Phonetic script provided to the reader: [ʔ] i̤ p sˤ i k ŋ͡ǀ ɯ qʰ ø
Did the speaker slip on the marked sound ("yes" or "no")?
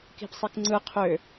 yes